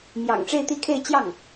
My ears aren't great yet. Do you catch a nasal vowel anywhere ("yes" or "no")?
no